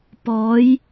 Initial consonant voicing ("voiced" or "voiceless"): voiceless